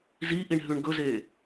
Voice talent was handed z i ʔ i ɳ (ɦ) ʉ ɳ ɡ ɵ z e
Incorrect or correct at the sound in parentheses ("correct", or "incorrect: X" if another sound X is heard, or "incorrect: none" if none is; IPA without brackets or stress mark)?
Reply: correct